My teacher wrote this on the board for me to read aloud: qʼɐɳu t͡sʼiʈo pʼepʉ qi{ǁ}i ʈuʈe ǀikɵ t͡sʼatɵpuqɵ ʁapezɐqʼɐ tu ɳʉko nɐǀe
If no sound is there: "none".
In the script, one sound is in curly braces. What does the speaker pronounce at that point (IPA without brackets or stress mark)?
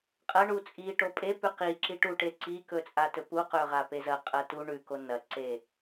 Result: ǁ